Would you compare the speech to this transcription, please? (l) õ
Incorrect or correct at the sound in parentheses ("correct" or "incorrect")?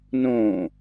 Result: incorrect